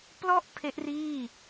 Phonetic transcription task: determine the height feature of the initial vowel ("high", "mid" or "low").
mid